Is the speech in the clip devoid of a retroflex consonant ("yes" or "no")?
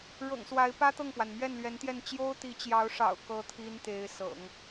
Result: no